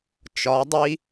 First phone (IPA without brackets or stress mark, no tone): t͡ʃ